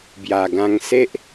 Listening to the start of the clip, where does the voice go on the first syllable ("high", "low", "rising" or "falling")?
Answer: low